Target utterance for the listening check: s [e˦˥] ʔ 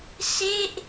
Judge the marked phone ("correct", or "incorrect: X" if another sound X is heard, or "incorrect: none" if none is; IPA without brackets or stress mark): incorrect: e˥˩